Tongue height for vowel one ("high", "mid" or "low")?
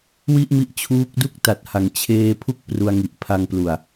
high